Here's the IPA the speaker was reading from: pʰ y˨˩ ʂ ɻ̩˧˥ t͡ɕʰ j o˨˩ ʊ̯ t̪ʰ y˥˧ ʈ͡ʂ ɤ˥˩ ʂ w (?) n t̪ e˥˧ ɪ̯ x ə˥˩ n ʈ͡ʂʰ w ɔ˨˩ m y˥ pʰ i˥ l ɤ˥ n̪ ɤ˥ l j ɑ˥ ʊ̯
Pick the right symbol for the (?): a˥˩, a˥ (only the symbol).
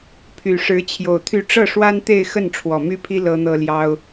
a˥